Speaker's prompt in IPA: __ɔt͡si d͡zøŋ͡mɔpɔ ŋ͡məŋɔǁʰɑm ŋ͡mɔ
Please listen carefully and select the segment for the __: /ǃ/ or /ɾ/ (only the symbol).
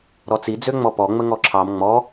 ɾ